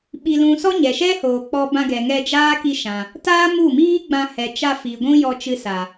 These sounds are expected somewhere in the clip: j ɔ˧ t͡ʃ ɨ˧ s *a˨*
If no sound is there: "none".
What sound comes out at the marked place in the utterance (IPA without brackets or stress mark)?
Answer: a˨